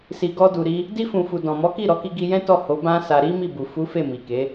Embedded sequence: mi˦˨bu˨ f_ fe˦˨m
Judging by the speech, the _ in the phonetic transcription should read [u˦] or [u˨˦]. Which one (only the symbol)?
u˨˦